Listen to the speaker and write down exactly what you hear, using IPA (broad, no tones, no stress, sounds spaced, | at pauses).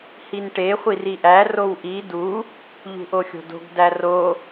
h i n ʈ e χʷ i r i ʔ æ r o w ʔ i d u | ʎ ṳ ʔ o xʲ o̤ d o̤ ɡ d æ r o